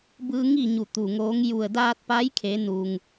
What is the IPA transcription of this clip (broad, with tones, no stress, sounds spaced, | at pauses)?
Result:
b ɯː˧ ŋ i˥˨ ɲ u˧˩ t̪ u˧˩ ŋ oː˧˥ ŋ j u˧˩ ə̯ d aː˧ t̚ p a˧˥ j kʰ e˩˧ n u˩ ŋ